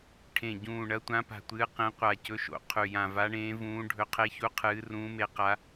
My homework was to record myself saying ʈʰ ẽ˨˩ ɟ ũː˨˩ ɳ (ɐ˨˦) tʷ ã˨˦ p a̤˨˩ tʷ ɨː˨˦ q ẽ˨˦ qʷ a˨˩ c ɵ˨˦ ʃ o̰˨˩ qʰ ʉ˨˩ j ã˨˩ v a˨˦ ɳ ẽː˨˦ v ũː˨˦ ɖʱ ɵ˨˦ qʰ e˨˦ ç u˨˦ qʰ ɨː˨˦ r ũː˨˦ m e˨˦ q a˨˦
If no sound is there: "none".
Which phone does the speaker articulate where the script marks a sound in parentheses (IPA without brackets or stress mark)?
ɐ˨˦